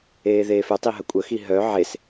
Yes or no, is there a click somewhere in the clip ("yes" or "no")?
no